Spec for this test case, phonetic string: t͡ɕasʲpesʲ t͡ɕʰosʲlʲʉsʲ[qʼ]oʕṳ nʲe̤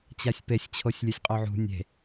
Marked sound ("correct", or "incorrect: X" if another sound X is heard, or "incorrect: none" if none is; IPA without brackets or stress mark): correct